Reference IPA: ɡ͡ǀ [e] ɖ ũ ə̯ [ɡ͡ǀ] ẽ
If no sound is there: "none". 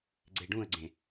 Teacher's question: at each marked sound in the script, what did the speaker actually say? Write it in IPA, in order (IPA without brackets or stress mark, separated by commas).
e, ɡ͡ǀ